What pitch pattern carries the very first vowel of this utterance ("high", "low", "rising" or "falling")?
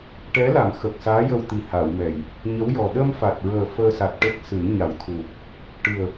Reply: rising